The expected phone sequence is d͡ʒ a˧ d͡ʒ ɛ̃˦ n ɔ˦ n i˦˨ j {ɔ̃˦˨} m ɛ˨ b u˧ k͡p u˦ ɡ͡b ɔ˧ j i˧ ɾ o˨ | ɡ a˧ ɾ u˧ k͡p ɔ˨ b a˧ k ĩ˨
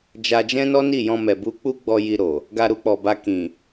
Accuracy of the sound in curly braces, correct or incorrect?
incorrect